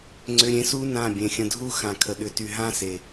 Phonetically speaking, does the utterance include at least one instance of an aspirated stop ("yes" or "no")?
yes